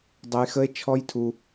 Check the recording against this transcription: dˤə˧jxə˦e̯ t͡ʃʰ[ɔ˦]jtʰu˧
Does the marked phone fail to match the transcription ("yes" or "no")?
no